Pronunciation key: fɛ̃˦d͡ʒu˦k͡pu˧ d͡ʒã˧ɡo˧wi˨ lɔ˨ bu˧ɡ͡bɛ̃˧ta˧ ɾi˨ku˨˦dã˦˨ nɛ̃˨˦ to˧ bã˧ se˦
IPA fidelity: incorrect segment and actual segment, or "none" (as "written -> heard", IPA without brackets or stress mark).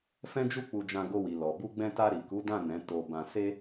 none